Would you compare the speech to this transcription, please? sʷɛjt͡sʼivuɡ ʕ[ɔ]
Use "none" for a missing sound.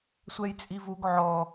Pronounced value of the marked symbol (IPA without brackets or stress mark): ɔ